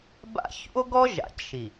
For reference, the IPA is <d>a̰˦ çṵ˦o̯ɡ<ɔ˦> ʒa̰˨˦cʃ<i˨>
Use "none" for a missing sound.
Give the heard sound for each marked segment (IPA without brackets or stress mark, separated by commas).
b, ɔ˦, i˨